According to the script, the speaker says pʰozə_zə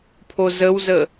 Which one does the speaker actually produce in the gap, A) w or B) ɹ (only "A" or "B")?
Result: A